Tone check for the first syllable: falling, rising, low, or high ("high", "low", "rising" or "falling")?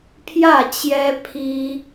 falling